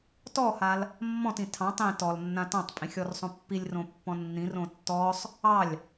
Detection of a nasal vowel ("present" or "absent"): present